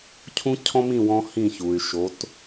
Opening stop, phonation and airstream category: aspirated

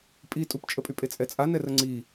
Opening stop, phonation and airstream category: ejective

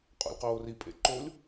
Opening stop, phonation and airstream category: ejective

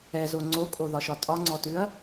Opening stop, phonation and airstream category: click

